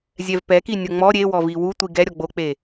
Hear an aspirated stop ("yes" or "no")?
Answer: no